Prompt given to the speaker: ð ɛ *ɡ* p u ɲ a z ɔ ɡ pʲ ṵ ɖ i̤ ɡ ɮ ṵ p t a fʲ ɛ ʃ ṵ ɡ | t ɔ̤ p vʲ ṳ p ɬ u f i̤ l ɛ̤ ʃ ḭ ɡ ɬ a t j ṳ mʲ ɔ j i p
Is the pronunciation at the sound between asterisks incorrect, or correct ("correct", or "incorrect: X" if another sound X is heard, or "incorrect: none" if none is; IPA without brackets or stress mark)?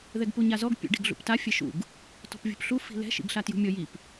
correct